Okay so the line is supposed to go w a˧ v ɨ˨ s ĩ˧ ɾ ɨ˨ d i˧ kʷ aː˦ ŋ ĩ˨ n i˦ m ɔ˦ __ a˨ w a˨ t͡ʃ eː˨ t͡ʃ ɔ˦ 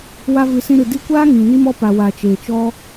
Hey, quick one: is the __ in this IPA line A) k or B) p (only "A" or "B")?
B